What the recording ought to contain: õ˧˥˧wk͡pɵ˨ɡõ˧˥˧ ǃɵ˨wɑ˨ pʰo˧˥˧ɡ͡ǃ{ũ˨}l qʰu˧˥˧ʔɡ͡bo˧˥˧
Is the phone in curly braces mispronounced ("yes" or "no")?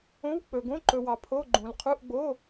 no